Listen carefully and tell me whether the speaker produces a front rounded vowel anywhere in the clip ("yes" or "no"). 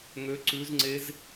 yes